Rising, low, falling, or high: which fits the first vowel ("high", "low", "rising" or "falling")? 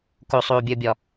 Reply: low